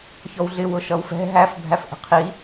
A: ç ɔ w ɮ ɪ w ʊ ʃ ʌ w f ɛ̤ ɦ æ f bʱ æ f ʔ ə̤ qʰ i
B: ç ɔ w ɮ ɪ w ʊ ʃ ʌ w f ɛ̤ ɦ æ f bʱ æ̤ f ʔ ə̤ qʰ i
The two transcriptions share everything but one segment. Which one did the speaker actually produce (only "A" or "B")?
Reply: A